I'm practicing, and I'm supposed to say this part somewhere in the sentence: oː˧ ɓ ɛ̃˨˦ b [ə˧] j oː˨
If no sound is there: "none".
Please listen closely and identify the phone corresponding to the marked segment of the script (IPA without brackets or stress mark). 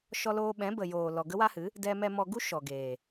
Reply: ə˨